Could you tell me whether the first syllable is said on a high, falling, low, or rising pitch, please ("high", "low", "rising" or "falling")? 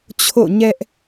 falling